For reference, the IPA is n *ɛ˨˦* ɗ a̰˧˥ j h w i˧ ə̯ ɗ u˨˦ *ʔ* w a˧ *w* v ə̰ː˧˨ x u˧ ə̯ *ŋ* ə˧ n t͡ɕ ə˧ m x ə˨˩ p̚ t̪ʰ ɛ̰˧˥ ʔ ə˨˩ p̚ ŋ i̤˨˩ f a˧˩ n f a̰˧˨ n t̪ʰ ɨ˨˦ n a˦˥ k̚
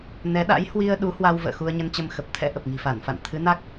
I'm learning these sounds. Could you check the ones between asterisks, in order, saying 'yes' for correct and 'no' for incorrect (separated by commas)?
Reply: yes, no, yes, no